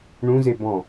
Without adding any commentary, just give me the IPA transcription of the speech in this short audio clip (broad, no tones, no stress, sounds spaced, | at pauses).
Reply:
ɳ ũ z e b ɔ̃